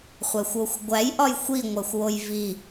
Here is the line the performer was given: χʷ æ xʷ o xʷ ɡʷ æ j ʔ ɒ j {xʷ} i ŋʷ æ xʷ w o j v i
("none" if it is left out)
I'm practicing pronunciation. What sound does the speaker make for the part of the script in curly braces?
xʷ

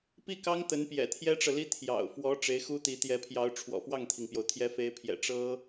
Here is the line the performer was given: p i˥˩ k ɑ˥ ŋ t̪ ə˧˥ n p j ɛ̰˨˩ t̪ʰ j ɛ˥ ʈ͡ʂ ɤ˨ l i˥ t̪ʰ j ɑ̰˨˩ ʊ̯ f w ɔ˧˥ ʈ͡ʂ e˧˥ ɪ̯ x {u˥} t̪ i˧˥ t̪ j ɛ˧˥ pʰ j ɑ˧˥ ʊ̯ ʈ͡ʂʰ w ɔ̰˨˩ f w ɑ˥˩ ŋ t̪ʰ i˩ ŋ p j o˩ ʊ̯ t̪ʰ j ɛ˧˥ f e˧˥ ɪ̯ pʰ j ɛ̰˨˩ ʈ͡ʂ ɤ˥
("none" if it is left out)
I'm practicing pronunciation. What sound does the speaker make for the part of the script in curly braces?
u˥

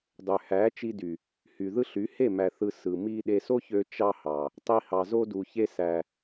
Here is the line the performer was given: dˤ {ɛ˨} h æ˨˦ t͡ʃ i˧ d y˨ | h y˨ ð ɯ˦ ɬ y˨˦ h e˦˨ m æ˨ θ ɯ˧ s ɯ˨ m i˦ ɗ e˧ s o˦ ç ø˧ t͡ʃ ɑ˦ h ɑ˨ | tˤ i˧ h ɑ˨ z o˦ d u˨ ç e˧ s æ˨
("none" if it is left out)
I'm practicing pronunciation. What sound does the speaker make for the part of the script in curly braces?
ø˨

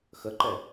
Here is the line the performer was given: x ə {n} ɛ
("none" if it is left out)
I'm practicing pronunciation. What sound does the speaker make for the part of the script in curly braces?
ǃ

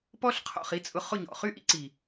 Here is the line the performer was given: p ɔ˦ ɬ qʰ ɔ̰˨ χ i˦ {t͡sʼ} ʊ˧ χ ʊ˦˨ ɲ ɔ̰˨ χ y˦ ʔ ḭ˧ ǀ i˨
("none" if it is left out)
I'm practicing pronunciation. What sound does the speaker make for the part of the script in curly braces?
t͡sʼ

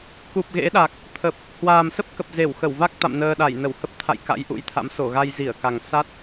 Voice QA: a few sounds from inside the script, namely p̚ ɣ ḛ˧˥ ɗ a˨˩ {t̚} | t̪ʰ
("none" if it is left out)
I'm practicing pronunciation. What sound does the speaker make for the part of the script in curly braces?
k̚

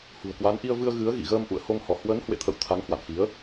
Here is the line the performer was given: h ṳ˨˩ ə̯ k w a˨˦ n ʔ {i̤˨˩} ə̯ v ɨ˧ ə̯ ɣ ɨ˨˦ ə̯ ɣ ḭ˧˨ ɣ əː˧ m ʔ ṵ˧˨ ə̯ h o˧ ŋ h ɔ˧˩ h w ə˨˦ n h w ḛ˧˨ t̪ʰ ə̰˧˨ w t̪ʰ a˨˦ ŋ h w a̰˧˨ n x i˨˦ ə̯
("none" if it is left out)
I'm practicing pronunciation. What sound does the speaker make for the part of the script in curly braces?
i˧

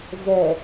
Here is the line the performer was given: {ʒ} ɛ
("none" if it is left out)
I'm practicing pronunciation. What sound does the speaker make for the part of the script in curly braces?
z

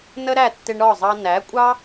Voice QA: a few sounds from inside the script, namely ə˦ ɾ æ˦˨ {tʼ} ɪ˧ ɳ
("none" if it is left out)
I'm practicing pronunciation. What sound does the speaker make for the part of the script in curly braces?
tː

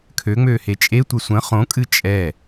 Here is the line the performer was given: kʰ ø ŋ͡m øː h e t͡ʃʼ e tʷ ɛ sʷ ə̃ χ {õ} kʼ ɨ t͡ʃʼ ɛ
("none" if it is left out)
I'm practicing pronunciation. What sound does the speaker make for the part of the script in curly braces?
õ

